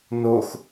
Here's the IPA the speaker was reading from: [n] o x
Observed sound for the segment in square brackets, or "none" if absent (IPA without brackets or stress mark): n